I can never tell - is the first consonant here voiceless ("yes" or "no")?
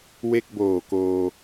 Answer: no